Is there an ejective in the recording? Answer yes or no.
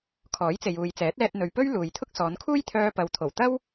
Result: no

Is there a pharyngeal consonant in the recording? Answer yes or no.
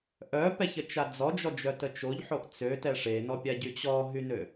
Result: yes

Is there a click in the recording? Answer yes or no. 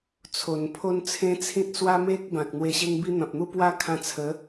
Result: no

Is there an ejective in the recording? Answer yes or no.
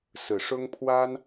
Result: no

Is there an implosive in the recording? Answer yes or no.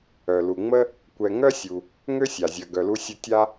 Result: no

